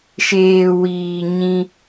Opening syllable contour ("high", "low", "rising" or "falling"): low